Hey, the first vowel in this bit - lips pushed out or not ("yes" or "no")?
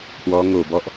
yes